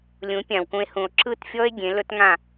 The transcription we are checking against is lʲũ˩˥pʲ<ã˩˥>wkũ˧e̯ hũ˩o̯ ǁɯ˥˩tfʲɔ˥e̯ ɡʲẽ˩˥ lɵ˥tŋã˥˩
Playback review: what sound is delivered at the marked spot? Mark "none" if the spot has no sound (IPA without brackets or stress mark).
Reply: ã˩